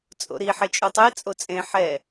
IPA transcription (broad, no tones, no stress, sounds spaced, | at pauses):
t͡sʼ o̰ ɾ i ħ e t͡ʃʼ u tˤ e t͡sʼ o t͡sʼ ẽ ħ ɛ